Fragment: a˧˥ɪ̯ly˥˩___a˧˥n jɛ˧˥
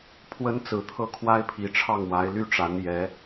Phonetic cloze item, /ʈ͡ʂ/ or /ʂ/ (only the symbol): ʈ͡ʂ